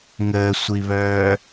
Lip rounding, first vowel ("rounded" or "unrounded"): unrounded